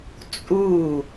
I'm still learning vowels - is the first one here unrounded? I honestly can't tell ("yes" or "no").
no